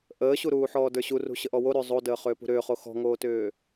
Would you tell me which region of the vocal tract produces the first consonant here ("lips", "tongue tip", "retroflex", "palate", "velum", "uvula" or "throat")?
throat